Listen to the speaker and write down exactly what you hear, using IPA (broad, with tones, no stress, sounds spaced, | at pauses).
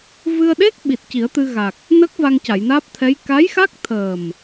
v ɨ˧ ə̯ ɗ e˦˥ k̚ ɓ i˨˩ t̚ c i˨˩˦ ə̯ t̪ ɨ˧ ɣ a˨˩ k̚ | n ə˦˥ k̚ v a˧ ŋ c a˨˩˨ j n aː˦˥ p̚ t̪ʰ ɛ˧˥ j k a˧˥ j x a˦˥ k̚ t̪ʰ əː˨˩ m